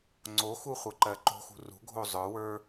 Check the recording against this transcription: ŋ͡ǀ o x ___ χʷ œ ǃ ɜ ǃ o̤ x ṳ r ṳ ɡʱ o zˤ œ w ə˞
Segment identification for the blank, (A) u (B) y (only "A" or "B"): A